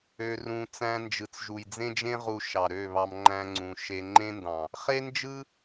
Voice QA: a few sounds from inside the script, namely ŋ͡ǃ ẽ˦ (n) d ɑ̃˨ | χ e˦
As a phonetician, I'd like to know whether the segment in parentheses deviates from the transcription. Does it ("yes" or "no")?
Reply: no